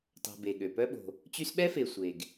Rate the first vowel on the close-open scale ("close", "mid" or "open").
open